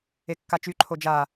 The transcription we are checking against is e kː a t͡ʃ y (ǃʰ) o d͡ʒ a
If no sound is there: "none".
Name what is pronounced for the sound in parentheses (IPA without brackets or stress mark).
ǃʰ